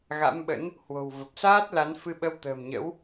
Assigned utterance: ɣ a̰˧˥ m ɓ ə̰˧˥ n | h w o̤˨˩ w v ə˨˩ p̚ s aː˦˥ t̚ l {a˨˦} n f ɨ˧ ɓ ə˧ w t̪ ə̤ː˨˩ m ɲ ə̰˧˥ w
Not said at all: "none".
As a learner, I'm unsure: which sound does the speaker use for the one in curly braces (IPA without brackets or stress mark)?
a˨˦